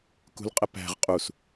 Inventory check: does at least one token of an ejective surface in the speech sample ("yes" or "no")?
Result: yes